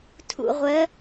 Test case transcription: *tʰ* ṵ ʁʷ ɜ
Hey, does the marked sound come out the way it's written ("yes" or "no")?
yes